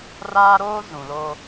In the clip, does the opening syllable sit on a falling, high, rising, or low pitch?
high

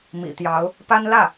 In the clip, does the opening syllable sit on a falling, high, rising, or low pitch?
low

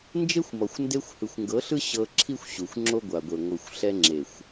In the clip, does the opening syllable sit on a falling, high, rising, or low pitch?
high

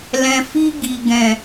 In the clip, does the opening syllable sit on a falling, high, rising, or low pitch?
low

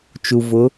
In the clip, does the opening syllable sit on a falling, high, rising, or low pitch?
low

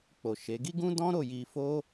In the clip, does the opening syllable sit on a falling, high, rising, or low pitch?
low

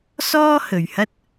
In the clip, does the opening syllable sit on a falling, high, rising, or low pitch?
high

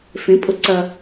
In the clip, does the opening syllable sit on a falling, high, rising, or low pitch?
rising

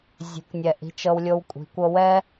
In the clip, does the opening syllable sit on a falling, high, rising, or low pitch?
rising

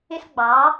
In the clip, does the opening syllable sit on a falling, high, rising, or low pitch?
high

